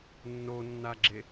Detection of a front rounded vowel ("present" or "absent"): absent